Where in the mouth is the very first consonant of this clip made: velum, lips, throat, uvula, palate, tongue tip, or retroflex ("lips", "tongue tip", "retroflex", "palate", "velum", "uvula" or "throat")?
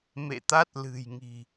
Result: lips